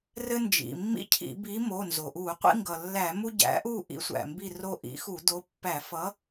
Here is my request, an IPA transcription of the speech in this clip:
r ɘ˦ n d͡ʒ ḭ˩ mː ḭ˦ cʰ ḭ˧˩˧ b i˨˥ m o˩˧˩ n z o˩ ʔ u˧˩˧ qʷ ḭ˦ ŋ ɡ ʌ˩ lː æ˧˩˧ m u˦ ɟ æ̰˨˥ ʔ u˦˨ ʔ ḭ˨˥ sʷ æ̰˩ m b i˦˨ r o˦ ʔ ḭ˨˥ x u˧˩˧ d o˨˥ pː æ˧˩˧ f ʌ˨˥

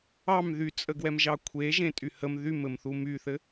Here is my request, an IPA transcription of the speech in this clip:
ɑ m ð y t͡sʼ ə ɡ w ɛ m ʒ ɑ kʷʰ e ʒ ẽ tʼ y h ə m ð y m ɘ m θ u m y θ ɘ

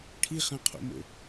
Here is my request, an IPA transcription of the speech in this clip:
ʈʰ i χ ã qʰ o̰ m o̰

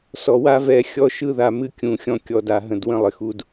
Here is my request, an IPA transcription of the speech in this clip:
s ɔ˨ w a˦ v ɛ˨ xʲ ɔ˦ ʃ ɯ˦ ð a˨ m ɨ˦ kʲ ũ˨ xʲ ɔ̃˦ kʲ ɔ˨ d a˨ ɦ ə̃˨ d w ə̃˦ lˠ ɪ˨ x u˦ d

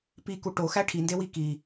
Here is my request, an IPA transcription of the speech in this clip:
p i k u ʈ o x æ ʈʰ i n d e w i k i

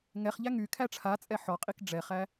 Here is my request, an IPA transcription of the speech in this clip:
ŋ ɛ χ ʎ æ ŋ y kʰ æ ʈ͡ʂʰ a t͡sʼ ɛ ħ ɔ qʼ i k ɖ͡ʐ ɛ χ æ

